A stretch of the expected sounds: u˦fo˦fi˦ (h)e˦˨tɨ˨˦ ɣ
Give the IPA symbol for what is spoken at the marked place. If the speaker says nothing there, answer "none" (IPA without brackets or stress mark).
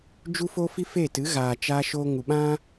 f